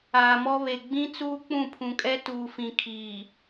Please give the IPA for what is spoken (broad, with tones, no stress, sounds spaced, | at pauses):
aː˨ m ɔ˦ β e˨ ɡ͡b ĩ˦ t͡s uː˦ k͡p ũ˦˨ pʰ ũ˨ kʼ ɛ˦ t uː˨ f ĩ˨ kʰ iː˨